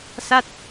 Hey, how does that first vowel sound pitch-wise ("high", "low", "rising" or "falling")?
falling